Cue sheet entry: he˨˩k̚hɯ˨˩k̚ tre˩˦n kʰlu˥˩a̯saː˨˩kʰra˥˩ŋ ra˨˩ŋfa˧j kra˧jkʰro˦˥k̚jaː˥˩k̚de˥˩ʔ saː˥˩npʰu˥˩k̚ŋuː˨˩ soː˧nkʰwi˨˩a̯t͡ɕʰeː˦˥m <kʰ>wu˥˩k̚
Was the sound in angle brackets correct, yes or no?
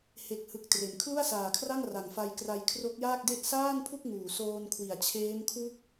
yes